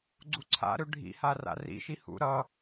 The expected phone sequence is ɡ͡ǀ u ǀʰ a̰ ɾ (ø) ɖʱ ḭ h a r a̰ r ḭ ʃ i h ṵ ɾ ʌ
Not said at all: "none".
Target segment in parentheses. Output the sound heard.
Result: ø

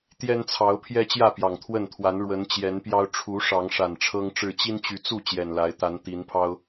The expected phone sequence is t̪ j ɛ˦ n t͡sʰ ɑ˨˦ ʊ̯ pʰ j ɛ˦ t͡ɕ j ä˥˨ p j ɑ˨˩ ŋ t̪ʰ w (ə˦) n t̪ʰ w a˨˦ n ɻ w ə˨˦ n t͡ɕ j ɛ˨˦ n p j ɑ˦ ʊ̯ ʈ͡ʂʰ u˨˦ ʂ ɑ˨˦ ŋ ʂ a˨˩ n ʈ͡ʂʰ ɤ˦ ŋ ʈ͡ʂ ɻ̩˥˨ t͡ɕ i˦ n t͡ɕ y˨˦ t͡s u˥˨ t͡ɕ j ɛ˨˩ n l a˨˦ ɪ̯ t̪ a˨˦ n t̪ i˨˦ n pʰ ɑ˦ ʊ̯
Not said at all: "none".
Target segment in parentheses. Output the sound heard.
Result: ə˥˨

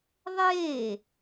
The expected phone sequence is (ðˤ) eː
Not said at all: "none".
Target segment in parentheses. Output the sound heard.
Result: ðˤ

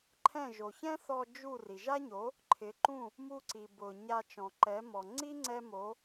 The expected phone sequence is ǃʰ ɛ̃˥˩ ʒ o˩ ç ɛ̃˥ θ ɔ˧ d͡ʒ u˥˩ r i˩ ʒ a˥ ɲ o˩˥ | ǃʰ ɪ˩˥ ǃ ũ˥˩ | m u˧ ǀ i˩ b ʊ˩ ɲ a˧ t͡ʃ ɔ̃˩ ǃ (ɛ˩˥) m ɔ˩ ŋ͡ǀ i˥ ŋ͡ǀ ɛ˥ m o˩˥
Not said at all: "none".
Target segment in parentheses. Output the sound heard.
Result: ɛ˩˥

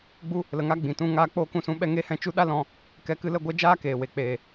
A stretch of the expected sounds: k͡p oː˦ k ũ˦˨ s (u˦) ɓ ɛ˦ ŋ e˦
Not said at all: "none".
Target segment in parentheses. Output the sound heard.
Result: ũ˦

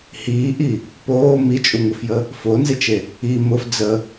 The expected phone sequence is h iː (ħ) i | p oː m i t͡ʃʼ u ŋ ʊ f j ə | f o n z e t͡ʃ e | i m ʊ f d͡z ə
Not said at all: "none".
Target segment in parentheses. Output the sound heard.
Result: ʔ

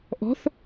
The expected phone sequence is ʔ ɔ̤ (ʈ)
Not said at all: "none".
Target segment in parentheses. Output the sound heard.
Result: θ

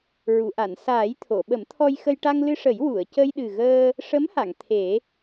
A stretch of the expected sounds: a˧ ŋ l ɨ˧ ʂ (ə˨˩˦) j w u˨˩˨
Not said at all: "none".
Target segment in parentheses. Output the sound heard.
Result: ə˨˩˦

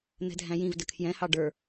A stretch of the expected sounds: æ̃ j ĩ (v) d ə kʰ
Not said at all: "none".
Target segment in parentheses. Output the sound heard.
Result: v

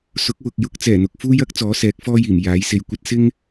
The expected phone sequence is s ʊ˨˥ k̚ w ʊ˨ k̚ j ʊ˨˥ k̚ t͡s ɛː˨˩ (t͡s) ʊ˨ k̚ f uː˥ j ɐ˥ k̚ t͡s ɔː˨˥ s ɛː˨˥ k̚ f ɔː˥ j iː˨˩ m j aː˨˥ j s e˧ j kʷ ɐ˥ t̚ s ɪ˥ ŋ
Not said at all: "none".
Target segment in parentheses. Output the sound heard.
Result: n̪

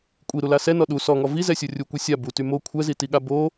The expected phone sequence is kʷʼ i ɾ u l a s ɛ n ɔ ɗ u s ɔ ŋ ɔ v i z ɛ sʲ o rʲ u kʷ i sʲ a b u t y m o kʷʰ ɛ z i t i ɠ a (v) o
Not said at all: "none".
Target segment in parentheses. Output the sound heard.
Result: b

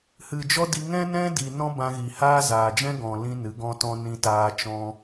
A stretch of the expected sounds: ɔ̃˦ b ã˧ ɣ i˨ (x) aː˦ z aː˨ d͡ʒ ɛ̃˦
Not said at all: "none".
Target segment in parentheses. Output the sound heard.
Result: h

